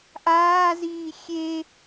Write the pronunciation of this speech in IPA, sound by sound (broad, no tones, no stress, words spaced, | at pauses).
ʔaːziː xʲe